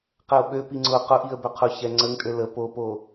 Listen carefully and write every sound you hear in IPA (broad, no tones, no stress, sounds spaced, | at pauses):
q ɛ ʊ̯ ɓ ø p i ŋ͡ǀ ʊ q ʊ ʔ i ə̯ b ʏ qʰ ʊ ç ɛ ŋ͡ǀ ə ŋ tʼ ø l ə p o p o